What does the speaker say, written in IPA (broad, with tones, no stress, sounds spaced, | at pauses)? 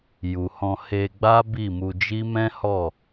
j u˨ h ɔ̃˧ h e˧ ɡ͡b a˦ b i˦˨ m u˧ d͡ʒ i˦ m ɛ̃˦ h ɔ˦˨